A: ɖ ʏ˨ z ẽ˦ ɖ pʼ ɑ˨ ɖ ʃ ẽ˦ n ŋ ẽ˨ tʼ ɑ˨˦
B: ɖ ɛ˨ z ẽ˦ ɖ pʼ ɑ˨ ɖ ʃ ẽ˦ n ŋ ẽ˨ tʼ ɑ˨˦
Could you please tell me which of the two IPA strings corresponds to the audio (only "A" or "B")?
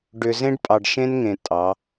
A